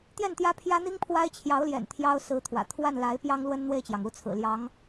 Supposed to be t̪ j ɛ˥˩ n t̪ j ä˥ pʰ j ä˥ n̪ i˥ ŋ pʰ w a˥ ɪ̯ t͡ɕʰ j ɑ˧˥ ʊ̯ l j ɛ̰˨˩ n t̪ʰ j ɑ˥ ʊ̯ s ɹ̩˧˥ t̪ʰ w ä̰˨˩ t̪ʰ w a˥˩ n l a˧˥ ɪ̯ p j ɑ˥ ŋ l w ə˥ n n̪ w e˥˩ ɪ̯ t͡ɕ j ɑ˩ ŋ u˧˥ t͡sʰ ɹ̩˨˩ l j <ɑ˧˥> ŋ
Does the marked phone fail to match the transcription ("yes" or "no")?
no